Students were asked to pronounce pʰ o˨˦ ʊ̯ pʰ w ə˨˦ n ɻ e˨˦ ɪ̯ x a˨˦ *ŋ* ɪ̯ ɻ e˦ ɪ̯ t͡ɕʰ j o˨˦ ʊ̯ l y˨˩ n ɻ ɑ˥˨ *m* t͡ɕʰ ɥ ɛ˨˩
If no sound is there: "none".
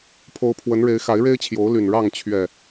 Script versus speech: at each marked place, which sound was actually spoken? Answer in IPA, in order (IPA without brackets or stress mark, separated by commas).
none, ŋ